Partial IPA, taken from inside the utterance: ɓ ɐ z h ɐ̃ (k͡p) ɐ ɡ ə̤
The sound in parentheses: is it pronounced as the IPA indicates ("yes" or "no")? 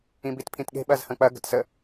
yes